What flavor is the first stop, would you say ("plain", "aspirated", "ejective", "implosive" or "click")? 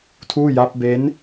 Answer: aspirated